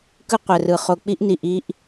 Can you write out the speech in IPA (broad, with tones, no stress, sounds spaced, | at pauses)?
k ɯ˦ qʷ ɛ˨ r ɯ˨ χ o˨ k͡p i˦ ʔ n i˨ ʔ i˦ ʔ